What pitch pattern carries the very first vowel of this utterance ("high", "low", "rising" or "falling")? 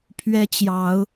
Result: high